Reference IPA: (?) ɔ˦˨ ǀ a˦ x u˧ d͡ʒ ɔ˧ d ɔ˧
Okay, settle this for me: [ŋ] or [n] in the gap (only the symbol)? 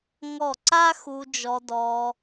ŋ